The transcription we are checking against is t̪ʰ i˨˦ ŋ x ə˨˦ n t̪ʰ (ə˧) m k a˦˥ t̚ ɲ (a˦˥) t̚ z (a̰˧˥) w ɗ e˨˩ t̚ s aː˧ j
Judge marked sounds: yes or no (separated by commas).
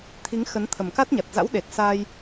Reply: no, no, yes